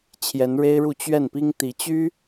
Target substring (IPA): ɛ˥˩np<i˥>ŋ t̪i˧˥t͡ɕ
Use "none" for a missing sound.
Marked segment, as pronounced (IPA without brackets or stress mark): i˥